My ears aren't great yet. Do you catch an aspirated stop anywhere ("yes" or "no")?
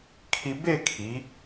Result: yes